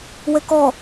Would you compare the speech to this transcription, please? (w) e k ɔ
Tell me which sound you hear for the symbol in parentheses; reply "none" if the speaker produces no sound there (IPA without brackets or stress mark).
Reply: w